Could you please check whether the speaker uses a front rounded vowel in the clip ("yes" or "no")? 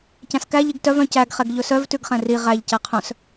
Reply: yes